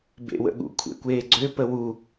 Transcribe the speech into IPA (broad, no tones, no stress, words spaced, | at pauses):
bḛwə̰ɠṵ kʷʰḛkʷeːɡ͡ǀø pəwu